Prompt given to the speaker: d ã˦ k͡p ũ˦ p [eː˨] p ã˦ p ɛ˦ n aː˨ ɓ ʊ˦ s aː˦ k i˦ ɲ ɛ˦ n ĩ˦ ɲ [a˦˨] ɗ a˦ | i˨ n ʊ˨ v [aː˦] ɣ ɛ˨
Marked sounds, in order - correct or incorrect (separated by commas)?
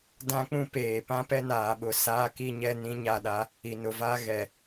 correct, correct, correct